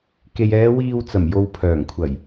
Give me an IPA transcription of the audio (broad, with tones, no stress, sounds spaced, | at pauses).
k e˨ j ɛː˨˧ w iː˧ w t͡s ɐ˨˩ m j o˨ w pʰ œː˨˩ ŋ kʷʰ ɐ˨˩ j